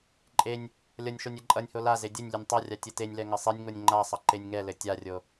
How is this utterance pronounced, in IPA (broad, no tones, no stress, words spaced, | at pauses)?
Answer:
ǃʼenʲ | lʲʌnʲʃonʲ ɛǃʼʌnʲho laze dʲɘnʲ lʲɘnʲtˤʌrʲa tʲɘtenʲlɛ ŋɘsˤenʲŋonʲ ŋ͡ǃasˤʌ ǃenʲŋɛlɘ tʲarʲo